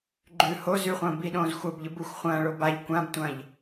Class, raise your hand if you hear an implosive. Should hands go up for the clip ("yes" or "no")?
yes